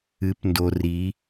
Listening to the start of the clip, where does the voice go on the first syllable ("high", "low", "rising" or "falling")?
rising